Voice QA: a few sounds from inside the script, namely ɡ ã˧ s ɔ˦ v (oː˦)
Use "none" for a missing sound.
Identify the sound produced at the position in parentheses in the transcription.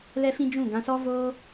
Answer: oː˦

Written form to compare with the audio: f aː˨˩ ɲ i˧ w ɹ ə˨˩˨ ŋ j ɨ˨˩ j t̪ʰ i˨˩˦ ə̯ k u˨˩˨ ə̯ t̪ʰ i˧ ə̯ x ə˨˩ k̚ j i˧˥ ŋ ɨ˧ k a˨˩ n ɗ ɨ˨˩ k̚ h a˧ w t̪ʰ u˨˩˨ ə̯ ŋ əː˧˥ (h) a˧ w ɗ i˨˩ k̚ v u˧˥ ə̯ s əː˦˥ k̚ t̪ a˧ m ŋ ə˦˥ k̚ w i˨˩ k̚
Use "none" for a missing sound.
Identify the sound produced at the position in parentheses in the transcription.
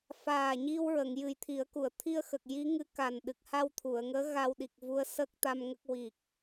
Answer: ɣ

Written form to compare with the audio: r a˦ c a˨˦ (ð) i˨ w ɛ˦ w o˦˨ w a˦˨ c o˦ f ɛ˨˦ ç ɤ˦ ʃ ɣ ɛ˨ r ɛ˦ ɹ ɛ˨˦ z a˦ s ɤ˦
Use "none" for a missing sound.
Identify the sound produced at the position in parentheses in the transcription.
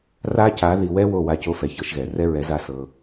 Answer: ð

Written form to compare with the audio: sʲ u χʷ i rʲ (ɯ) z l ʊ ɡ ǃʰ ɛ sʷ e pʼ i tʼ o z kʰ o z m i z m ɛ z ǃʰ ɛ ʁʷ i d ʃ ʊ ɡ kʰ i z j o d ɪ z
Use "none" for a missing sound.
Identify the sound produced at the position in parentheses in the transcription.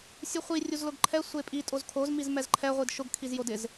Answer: u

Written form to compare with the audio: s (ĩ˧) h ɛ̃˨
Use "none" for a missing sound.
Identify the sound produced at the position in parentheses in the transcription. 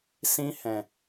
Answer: ĩ˧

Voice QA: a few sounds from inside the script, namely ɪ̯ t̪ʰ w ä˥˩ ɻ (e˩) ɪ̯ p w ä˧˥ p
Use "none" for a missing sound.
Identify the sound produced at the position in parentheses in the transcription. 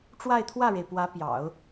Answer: e˩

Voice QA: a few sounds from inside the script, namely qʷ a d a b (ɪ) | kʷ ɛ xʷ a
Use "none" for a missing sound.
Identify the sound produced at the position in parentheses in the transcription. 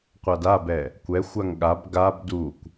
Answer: ɛ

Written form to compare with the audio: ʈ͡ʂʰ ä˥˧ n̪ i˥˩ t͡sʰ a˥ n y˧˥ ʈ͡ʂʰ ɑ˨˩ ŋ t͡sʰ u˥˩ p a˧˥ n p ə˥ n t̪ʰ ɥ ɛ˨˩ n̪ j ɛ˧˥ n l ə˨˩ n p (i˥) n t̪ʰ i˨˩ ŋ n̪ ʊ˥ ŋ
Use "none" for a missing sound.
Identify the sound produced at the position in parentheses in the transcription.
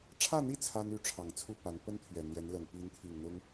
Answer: i˧˥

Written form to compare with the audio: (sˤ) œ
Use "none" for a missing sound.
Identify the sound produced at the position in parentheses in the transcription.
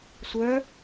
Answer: sʷ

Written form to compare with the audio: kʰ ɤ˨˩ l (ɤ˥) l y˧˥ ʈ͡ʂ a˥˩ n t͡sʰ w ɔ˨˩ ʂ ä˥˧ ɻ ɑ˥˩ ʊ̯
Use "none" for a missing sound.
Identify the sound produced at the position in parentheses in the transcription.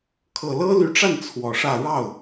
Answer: ɤ˥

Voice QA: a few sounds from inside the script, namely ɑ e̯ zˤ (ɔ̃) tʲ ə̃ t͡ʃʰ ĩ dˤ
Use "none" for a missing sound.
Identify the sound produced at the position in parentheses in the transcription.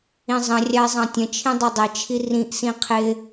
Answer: ɑ̃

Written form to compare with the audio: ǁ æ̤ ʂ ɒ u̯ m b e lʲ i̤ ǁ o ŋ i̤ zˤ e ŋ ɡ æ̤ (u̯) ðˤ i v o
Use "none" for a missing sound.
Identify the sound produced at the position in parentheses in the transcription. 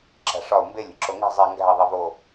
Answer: i̯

